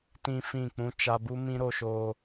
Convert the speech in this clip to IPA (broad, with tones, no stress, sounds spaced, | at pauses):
t ĩ˦ f ĩ˦˨ k͡p ũ˦ t͡ʃ a˧ b u˦ m ĩ˦ ɾ o˧ ʃ o˧